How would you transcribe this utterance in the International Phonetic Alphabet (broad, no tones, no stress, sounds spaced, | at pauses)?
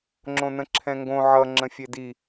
ŋ͡ǁ õ n ə̃ ǁʰ ɛ̃ ŋ ɡ õ ʕ ʌ ŋ͡ǁ ə̃ fʲ e d i